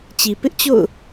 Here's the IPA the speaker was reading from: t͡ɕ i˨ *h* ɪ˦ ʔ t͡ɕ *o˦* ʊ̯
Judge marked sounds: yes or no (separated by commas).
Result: no, no